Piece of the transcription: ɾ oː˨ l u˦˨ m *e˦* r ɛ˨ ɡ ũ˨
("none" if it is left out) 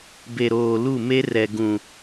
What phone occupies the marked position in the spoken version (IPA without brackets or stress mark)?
e˦